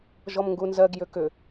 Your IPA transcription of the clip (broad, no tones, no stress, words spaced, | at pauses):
ʒɔmŋɡunzɜɡ jʏkʏ